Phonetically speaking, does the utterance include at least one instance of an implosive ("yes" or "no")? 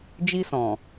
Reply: no